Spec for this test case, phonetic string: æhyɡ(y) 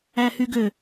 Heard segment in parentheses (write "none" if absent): ø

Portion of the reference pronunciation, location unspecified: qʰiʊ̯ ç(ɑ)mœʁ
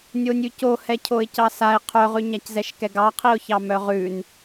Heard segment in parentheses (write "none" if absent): ɑ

